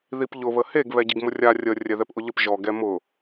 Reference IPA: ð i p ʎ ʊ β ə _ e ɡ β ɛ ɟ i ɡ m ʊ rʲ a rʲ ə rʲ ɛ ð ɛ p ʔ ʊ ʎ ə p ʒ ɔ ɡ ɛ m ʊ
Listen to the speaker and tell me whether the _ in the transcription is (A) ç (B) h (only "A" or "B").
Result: B